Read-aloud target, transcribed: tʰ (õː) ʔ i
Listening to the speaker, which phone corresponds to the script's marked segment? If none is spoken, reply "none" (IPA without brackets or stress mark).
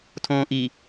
õː